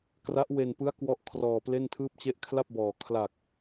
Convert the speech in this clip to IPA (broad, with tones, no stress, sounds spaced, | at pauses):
k r a˦˥ ʔ w e˧ n p ɯ˦˥ a̯ k w ɔ˥˩ ʔ kʰ r ɔː˧ p l e˥˩ n tʰ ɯː˥˩ p̚ t͡ɕ e˥˩ ʔ kʰ l a˥˩ p̚ b ɔː˨˩ kʰ l a˨˩ k̚